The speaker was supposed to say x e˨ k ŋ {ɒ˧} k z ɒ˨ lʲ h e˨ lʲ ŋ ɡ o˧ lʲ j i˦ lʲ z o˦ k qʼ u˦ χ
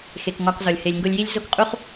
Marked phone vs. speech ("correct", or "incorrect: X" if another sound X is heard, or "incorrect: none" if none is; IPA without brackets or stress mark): correct